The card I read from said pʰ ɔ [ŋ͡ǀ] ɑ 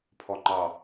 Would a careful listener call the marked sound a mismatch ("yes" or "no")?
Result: yes